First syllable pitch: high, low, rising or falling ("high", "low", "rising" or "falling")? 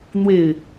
low